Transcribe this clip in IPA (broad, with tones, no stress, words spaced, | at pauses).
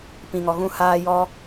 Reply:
pĩ˨ŋɔ˨ ɣũ˧haː˧jɔ˧